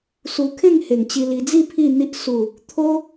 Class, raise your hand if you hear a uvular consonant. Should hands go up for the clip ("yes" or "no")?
no